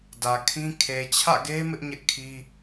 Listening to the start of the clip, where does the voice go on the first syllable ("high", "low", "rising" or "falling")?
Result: low